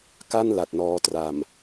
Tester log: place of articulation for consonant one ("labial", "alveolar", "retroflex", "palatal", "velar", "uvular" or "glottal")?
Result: velar